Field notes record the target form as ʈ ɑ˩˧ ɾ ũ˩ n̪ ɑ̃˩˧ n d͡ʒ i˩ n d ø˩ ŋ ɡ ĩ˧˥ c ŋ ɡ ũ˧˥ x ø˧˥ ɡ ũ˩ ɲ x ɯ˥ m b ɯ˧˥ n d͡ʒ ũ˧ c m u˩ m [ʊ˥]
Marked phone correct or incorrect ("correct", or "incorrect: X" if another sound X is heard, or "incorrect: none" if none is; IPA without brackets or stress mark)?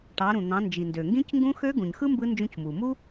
incorrect: u˥